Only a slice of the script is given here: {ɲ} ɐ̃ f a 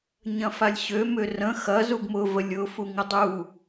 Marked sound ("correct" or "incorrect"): correct